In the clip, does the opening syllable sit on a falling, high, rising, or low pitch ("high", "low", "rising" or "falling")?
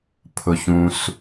low